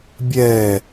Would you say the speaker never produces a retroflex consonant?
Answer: yes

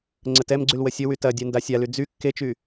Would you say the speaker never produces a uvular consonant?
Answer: yes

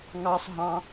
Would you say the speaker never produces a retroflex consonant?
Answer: yes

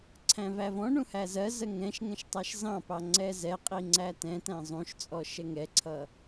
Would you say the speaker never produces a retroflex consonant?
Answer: no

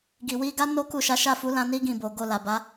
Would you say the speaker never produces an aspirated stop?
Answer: yes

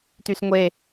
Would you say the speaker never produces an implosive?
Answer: yes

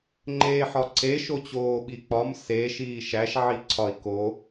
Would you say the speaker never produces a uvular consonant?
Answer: yes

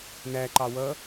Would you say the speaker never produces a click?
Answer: no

